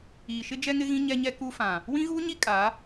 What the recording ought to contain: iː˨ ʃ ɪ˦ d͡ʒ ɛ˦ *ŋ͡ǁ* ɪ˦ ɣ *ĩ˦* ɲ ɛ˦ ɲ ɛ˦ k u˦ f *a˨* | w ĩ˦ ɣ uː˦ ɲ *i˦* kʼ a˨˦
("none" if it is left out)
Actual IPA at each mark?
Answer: ŋ, ĩ˦, ã˨, i˦

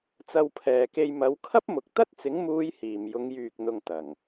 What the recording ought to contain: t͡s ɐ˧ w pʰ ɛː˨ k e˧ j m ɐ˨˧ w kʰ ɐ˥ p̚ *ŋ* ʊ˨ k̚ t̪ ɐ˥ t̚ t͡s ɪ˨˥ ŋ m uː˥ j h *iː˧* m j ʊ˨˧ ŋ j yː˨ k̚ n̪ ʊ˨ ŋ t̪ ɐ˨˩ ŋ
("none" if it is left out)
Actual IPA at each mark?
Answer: m, iː˨

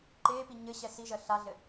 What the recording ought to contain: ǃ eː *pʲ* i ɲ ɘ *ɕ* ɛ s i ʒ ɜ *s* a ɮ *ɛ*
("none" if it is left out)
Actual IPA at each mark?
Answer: p, ɕ, ɬ, ɘ

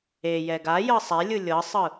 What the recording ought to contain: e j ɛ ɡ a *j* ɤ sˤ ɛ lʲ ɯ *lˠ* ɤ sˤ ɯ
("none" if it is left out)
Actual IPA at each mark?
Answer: j, lʲ

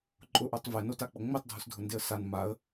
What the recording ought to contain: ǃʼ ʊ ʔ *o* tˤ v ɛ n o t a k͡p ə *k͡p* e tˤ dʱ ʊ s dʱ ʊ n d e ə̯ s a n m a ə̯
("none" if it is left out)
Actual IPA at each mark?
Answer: o, ŋ͡m

